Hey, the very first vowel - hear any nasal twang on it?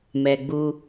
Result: no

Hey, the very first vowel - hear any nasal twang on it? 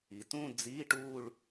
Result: no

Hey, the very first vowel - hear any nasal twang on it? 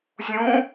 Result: yes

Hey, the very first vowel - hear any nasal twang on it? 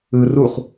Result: no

